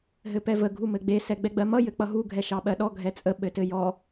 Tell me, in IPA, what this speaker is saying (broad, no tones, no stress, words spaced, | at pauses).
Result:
ɦɘpɛvə ɡʱumɘɡ͡be sɛɡ͡bɛɡ͡bɜmʌ jɘk͡pʌɦu ɡʱɛʃɑɓɜɗɔ ɡʱɛt͡sʼə ɓɘtɘjɔ